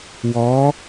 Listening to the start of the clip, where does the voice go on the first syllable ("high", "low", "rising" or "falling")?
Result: rising